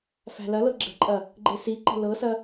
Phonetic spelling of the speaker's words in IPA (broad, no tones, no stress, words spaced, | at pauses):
fæ̤lɐlɤ ɡ͡ǁə̤ǃʼɐ | ɡ͡ǃesiǃə̤ lɤsɐ